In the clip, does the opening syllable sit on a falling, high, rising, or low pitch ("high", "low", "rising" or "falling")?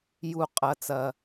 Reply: falling